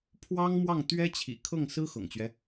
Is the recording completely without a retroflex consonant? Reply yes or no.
yes